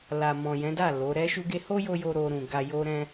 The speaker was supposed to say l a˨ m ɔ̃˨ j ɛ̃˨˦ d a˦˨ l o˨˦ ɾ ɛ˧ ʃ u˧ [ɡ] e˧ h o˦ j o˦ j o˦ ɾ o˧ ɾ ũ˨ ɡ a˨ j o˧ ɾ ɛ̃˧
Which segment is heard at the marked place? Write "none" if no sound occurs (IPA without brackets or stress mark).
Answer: ɡ